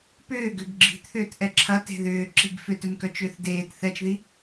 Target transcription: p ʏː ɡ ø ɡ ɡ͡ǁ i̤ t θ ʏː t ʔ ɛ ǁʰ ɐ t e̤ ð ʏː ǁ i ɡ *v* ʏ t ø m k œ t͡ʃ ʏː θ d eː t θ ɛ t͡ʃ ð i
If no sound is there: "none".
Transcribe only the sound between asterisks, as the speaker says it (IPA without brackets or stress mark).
f